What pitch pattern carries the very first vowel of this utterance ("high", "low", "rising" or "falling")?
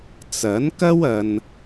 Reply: rising